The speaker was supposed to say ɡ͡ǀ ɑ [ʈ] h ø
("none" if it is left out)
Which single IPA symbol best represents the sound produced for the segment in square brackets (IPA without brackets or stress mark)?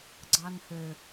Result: n